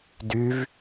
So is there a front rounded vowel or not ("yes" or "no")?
yes